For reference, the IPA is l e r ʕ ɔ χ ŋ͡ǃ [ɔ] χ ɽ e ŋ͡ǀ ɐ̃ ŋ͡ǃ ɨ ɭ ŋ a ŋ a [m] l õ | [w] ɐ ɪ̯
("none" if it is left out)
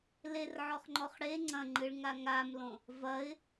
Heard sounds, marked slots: ɔ, m, v

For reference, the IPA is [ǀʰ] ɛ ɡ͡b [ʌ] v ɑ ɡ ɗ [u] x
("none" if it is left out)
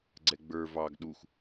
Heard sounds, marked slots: ɡ͡ǀ, ə˞, u

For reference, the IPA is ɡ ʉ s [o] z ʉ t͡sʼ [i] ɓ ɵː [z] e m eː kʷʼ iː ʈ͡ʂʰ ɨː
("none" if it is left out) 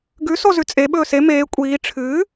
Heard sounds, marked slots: o, e, s

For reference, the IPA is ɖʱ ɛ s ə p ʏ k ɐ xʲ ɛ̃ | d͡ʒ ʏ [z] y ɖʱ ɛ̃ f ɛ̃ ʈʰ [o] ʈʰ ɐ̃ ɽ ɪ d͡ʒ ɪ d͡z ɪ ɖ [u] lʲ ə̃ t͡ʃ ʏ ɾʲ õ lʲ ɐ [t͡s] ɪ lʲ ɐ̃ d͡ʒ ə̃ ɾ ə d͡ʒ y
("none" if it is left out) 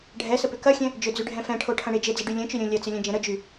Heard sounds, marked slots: d͡z, o, y, t͡s

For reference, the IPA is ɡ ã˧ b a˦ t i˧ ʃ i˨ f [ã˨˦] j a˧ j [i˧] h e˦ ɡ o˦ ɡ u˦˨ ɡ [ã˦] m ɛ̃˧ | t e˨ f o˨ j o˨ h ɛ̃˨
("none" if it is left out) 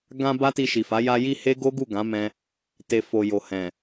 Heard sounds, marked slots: a˨˦, i˧, ã˨˦

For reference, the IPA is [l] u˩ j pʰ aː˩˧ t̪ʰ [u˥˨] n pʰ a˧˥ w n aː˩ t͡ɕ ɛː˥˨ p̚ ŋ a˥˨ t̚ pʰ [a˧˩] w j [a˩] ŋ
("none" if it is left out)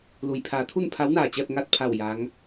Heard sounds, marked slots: l, u˥˨, a˧˩, a˧˥

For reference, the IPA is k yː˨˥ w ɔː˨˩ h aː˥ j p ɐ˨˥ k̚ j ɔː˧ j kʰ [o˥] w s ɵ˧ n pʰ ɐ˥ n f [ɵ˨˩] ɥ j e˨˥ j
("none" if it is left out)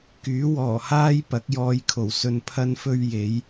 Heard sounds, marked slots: o˨˩, ɵ˥

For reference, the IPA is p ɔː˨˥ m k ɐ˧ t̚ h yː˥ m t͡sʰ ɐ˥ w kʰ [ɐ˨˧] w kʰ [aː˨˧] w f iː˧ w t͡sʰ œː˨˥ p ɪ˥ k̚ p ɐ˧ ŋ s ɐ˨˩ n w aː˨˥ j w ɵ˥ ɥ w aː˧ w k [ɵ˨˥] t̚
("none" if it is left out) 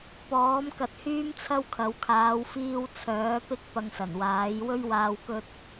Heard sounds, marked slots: ɐ˨˧, aː˨˧, ɵ˥

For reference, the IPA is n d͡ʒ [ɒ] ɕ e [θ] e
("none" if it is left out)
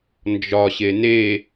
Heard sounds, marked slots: ɒ, n

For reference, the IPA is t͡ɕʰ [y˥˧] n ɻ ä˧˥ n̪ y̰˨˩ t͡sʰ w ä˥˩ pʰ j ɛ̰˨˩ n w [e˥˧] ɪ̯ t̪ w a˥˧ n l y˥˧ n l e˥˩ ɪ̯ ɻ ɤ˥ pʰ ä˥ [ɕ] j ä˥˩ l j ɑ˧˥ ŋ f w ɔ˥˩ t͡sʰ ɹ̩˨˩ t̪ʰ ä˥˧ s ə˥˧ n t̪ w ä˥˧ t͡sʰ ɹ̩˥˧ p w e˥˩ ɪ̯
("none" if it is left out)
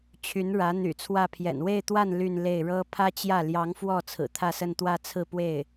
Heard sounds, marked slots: y˧˥, e˥˧, t͡ɕ

